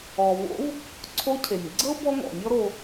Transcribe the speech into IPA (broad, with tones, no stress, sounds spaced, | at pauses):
ɔ˩ v o̰˧˥ v | ǀʰ o˧˥ cʰ e˩ nʲ ɡ͡ǀ ɤ˥ b ɔ˥ ŋ ɔ̰˩ nʲ ɔ˥ ɾ o˧